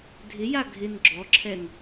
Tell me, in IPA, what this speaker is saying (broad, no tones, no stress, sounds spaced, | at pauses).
dʱ ɪ j a ɡʱ ɪ n ɡ͡ǁ ɔ ǁʰ ɛ n